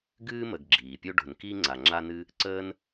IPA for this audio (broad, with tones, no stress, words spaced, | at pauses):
ɡɨː˥mə˨ɡ ɡ͡ǁiː˩pʲo˥ ɖo̤˨n ki˥ ŋ͡ǀa˨ŋ͡ǁa˥nɨ˥ | ǀəː˦n